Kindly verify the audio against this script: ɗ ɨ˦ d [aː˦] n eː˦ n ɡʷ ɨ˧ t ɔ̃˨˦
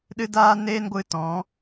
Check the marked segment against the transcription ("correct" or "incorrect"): correct